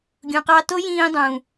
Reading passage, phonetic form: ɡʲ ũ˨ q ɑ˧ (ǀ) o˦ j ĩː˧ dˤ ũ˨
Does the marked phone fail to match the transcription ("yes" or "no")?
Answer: yes